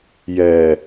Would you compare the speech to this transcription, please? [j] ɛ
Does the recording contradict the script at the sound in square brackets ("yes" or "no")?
no